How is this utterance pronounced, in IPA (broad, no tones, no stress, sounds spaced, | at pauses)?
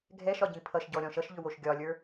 ɡʱ ɛ ʃ ɒ ɟ ĩ pʰ ʌ ʃ ɟ ɔ ɾʲ ɔ̃ ʃ ʌ ʃ ʎ ʏ w o ʃ ɡʲ ɒ lʲ ə˞